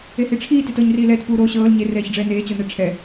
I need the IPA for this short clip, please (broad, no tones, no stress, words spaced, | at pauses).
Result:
ehiʈ͡ʂʰiː tetɤːɲriːlɛːt puːɾoː ɕɤːl ɲe rɛːçɖ͡ʐɛːneː t͡ɕonɛʈ͡ʂʰɛ